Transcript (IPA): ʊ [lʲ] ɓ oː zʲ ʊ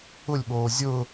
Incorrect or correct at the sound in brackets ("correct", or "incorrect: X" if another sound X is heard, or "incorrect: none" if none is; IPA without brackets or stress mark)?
correct